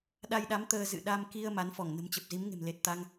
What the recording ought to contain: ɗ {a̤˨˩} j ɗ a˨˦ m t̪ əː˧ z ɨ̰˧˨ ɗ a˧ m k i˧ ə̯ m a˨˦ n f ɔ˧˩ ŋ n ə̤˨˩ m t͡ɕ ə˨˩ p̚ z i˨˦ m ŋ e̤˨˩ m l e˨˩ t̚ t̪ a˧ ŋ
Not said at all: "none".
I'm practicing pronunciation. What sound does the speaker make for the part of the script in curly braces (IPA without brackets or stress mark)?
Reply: a˧